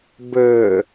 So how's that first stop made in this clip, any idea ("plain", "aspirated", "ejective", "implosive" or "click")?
plain